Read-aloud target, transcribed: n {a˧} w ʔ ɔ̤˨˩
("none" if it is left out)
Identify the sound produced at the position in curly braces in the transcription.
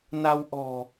a˧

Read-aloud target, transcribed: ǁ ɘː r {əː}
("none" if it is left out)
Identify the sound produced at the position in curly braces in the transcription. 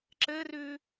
ʉː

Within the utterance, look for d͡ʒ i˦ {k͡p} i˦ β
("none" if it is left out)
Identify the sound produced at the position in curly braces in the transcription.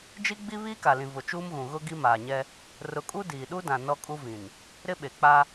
ɡ͡b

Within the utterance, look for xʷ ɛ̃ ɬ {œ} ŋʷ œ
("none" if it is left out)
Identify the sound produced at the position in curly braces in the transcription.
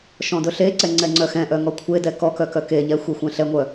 ɛ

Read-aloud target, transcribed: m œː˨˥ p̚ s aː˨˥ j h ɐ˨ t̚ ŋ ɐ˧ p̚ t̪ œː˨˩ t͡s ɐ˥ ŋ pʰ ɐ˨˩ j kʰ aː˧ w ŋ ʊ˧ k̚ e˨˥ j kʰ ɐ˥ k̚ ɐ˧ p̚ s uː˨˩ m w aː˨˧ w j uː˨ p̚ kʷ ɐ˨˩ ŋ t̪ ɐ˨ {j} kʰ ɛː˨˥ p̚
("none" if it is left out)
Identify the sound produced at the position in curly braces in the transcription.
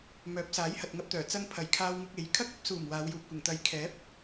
j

